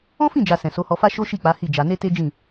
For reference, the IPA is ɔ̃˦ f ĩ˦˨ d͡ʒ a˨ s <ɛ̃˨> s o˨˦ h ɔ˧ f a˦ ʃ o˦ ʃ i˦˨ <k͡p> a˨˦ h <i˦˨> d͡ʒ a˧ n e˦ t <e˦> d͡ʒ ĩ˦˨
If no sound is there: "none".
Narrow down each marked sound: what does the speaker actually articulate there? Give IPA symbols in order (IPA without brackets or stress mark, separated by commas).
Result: ɛ̃˨, k͡p, i˦˨, e˦